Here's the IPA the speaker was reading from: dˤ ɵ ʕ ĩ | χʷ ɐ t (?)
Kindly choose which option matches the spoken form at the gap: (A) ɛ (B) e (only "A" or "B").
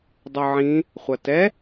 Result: A